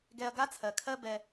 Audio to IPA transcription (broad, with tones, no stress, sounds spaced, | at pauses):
ɡ ɛ˨ ɐ̯ ɡ a˥ t͡sʰ ɜ˩ kʰ ɜ˦ b ɛ˨